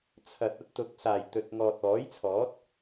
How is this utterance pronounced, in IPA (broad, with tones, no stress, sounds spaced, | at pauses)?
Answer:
t͡sʰ ɐ˨ t̚ ɐ˥ t̚ t̪ ʊ˨˥ k̚ s aː˨˩ j t̪ ɵ˨ t̚ ŋ ɔː˨ t̚ ɔː˨˥ j t͡sʰ ɔː˨˥ t̚